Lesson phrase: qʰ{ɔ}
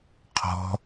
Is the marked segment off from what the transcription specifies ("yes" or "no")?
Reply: yes